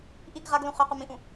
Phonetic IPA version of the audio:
ʔ i ɡ ʁ a ɡ l ũ χ œ q u m ĩ ʔ ũ

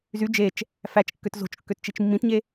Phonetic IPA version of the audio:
z y d͡ʒ e t͡ʃ | f æ t͡ʃ kː ø t z o̤ t͡ʃ kː ø t t͡ʃ i t͡ʃ mː ĩ t ɲ e

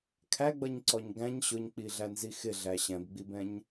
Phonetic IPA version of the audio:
kʰ æ ɡ͡b ʌ ɲ ǀ ɔ ɲ ɡ æ̃ ɲ ɕ ʊ ɲ k͡p i ɮ æ n z i x ɪ ɮ æ ɕ ɛ̃ b ɡ͡b i b ɛ̃ ɲ

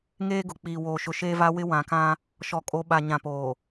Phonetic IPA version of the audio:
ŋ eː˦ ɡ ʊ˨ k͡p iː˨ w oː˨ ʃ ʊ˨ ʃ eː˦ v a˦ w ɪ˦ w ã˨ k ã˦ | ʃ ɔ˨ kʼ o˨˦ ɓ a˨ ɲ ã˨ p oː˨

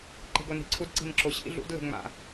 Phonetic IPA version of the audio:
ǃ e̤ ɡ o n i̤ ǀʰ u d ǀ i̤ n ǁ o ɕ ḭ ɮ ṵ d l e̤ ŋ͡m a̰

